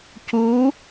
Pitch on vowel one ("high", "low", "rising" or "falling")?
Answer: rising